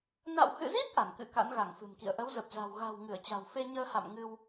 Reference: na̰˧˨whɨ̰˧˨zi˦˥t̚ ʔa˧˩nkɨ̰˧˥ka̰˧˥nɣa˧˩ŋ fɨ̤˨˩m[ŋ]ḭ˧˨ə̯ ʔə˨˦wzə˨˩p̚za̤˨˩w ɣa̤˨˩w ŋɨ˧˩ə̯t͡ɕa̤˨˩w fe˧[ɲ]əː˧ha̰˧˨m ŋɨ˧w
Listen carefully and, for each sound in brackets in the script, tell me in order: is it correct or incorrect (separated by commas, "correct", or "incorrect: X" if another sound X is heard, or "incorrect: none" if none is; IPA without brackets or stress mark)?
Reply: incorrect: k, correct